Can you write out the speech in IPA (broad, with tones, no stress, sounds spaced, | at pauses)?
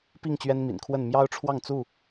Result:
p i˥˨ ŋ t͡ɕ ɥ ɛ˦ n m ḭ˨˩ n kʰ w ə˥˨ n m j ɑ˦ ʊ̯ ʈ͡ʂʰ w ɑ˥˨ ŋ t͡s u˥˨